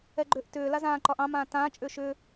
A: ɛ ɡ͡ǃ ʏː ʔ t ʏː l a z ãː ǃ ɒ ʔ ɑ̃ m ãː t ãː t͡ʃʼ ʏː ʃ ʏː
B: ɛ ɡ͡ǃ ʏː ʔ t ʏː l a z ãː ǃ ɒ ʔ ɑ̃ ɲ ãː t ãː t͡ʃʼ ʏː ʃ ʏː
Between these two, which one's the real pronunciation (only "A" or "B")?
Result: A